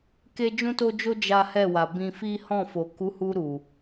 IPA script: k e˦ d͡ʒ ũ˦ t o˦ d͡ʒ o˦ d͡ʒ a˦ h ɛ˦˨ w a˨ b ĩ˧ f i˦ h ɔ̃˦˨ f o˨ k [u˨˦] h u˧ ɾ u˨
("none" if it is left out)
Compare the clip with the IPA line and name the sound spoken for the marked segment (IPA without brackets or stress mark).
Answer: u˨˦